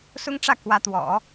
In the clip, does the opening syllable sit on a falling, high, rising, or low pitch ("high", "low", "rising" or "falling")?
high